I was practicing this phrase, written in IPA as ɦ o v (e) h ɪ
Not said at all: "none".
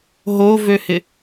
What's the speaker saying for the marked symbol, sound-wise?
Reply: ø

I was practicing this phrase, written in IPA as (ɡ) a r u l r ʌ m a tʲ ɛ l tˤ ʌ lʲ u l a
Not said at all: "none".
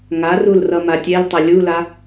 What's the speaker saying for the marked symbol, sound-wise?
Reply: ŋ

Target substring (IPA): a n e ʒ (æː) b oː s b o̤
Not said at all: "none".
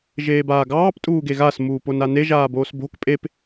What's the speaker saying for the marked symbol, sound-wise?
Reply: aː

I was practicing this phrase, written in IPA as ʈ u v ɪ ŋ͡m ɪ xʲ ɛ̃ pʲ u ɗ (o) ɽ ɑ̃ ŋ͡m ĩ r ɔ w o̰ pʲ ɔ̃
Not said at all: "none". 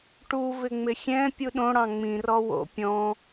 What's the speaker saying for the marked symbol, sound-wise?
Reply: õ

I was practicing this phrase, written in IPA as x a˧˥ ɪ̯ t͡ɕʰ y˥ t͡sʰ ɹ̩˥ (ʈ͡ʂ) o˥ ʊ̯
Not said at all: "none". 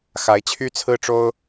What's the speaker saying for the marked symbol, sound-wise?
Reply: ʈ͡ʂ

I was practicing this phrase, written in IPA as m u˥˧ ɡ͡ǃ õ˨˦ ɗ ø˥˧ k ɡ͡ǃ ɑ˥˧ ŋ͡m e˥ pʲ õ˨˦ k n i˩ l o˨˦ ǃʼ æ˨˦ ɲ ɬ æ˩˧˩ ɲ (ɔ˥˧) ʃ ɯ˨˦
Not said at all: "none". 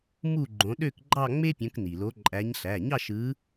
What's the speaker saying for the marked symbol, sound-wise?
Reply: ɑ˥˧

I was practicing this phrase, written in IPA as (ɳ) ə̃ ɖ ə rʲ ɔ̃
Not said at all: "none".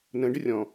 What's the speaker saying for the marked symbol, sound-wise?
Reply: n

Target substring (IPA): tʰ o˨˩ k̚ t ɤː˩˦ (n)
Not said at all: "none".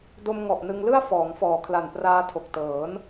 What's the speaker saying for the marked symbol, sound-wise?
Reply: n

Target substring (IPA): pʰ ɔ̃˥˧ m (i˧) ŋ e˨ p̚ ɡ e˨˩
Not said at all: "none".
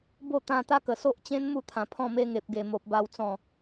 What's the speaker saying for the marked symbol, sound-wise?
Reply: e˧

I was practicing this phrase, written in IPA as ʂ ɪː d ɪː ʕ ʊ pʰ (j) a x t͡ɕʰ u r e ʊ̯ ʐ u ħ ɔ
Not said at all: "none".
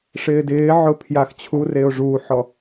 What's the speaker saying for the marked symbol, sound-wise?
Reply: j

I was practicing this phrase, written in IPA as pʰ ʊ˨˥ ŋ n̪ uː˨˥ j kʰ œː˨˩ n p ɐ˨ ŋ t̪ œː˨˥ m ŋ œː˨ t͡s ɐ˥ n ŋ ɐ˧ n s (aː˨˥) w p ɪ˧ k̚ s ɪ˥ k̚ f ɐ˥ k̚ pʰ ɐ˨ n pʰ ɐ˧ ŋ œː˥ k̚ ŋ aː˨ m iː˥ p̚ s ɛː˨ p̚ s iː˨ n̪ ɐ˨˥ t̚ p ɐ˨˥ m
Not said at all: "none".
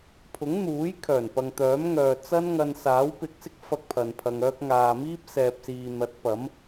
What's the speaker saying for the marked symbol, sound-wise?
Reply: aː˨˥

